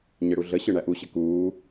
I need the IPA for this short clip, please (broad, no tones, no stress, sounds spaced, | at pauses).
ɲ ɘ ɽ u ɮ ə ɕ ɯ ɳ æ ʔ u ɕ ɘ k uː